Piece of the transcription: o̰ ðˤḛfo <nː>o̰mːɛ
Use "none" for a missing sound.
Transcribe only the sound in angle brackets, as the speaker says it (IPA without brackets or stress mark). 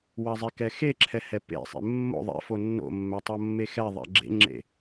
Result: nː